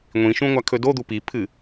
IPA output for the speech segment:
ŋʷĩʃũ ŋʷakʰɵdod̪u pipʰɨ

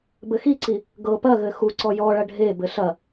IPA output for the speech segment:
bɘxiǀi | ɡɤ pɐɣɘ xuǀɔ jɔɭɐ ɖʱebɘ ɬɐ

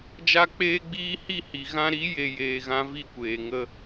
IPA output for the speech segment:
d͡ʒa˦ k͡peː˦ɡ͡biː˦ hi˦˨hi˨ ɣã˧ɾi˨˦je˨ jeː˨ɣã˧ vi˦˨kʷeː˨ ŋə˧

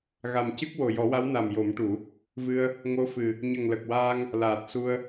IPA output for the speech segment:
ɣa˨˩mcɨ˦˥k̚ wo˨˩jɔ˨˩˦wa˧˥w na˨˩mjo˨˩˦mʈu˨˩˦ | vɨ˧ə̯ | ŋo˧˥fɨ˨˩ | ɲə˨˩ŋlə˨˩k̚waː˧ŋ | laː˨˩t̚su˧ə̯

